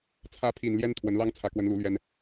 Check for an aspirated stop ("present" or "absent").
present